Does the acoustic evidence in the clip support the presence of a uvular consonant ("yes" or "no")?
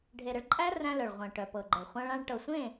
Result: yes